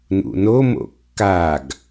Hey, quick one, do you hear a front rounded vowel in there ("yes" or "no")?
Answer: no